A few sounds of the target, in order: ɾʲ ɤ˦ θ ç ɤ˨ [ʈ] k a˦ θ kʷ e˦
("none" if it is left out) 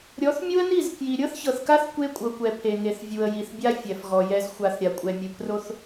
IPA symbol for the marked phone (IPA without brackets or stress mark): θ